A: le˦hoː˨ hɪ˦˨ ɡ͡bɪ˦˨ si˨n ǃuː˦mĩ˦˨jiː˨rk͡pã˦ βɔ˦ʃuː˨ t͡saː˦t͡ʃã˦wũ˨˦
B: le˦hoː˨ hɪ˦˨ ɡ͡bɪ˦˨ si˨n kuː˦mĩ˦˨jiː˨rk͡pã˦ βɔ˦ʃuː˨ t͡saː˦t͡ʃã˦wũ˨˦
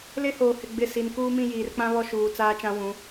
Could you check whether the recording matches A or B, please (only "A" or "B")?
B